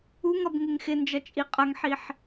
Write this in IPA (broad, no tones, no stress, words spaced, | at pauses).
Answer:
uŋʌb ŋɪŋxɪnd͡ʒʌ t͡ʃʼiqʼʌŋħiħ